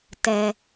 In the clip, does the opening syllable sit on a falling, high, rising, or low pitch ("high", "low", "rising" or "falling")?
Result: low